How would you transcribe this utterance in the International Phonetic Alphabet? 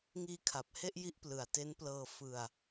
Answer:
ŋ iː˦˥ kʰ a˨˩ p̚ h e˥˩ ʔ j i˥˩ ʔ p l ɯ˨˩ a̯ t e˦˥ n p l ɤː˧ f ɯ˧ a̯

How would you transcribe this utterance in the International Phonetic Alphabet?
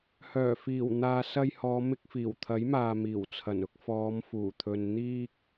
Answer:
h œː˨˩ f iː˨˩ w n̪ aː˨ s ɐ˧ j h ɔː˨˧ m ɪ˧ k̚ f iː˨˩ w t̪ʰ ɐ˨˥ j m aː˨ m iː˨˩ w t͡sʰ ɐ˨˩ n ʊ˧ k̚ f ɔː˨˧ m f uː˨˩ t̪ʰ ɵ˨ n n̪ iː˧ k̚

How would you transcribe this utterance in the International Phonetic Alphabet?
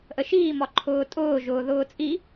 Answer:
ʔ ə ʃ iː m ɒ ǃʰ ʊː tʼ ʊː ʒ ʊː ð ʊː t͡sʼ i

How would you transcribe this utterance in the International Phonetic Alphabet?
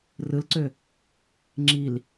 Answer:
r ɯ l ǀ ø | ŋ͡ǁ i l

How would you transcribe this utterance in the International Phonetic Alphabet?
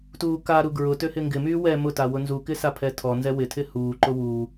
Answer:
t uː k a ɾ u ɡ ɹ ʊ t ø h ɪ ŋ ɡ ɪ m yː w ɛ m ʊ t a w ʊ n z u k ɪ s a pʰ ɛ tʰ ɔ n z ɛ w ɪ tʰ ɪ h uː ǃ ʊ w uː

